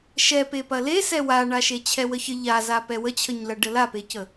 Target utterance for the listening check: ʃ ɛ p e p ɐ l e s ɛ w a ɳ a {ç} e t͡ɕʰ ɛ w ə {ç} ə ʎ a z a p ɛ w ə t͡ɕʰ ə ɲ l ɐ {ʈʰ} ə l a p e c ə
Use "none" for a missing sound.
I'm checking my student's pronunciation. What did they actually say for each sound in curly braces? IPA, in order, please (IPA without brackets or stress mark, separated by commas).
ʃ, ç, ɖ